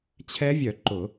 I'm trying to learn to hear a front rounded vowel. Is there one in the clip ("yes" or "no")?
yes